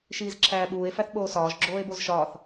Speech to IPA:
ʃ iː z ǁʰ æː ɓ uː e̯ f æ θ ɓ oː s ɒː ʒ ɡ͡ǁ oː e̯ b o z ʃ ɒː θ

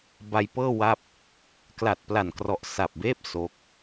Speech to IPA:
b a˧ j p ɤː˥˩ w a˥˩ p̚ | k l a˨˩ t̚ p l a˨˩ n k r ɔ˨˩ ʔ s a˨˩ p̚ b eː˥˩ p̚ s o˦˥ k̚

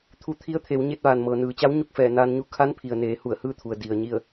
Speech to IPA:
t̪ʰ u˧ t̪ʰ i˧˥ ə̯ t̪ʰ e˩˧ w ɲ e˧ t̚ ʋ aː˩ n m ɤː˩ n ɯː˩˧ t͡ɕ a˧˥ w ɲ u˥˨ k̚ f ɛː˧˩ n aː˧ n ɲ u˧˥ kʰ a˧˥ n pʰ i˩ ə̯ n eː˩˧ h u˧˩ ə̯ h ɯː˥˨ t̪ʰ u˩ ə̯ d i˩ ə̯ ɲ i˥˨ ə̯

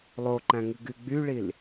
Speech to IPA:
lˠ o ǃ æ̃ ŋ ɨ ɡ y ɡ͡b y ɭ i l

